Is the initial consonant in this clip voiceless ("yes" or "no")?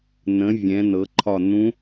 no